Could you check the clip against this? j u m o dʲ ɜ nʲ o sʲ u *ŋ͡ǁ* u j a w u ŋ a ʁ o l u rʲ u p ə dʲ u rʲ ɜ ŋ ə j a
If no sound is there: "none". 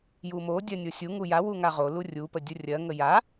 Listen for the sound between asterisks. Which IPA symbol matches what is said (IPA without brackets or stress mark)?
ŋ